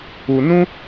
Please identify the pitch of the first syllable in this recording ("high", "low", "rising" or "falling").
low